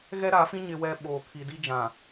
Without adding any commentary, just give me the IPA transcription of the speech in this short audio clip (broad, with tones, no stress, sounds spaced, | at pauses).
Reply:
ɣ ɛ˦ ɾ a˨˦ f ĩ˦ ɲ ɪ˦ w ɛ˦ ɓ oː˨ kʰ i˨ d i˦ d͡ʒ ã˨